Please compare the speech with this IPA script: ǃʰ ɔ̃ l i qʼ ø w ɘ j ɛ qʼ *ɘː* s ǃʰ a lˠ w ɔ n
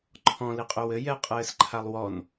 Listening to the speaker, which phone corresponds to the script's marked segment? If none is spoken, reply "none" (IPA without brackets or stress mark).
ɘː